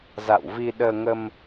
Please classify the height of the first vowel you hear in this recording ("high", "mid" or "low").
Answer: low